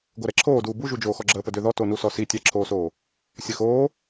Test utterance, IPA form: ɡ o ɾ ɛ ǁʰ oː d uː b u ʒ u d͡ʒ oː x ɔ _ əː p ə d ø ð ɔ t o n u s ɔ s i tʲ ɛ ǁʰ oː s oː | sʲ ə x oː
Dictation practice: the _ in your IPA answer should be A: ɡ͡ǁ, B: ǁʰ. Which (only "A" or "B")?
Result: A